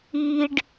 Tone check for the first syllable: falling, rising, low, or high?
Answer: low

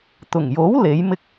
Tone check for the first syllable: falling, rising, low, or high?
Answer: low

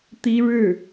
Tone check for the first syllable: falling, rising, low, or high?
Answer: high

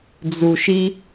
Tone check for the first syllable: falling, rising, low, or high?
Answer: low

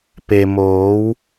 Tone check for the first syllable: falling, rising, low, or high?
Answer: low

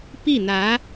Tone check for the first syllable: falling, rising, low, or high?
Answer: falling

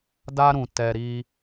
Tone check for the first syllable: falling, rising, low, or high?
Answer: high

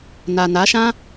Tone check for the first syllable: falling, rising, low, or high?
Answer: low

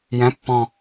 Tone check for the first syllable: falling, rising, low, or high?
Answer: rising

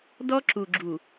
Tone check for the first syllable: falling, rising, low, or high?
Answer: high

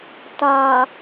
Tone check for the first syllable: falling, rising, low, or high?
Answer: low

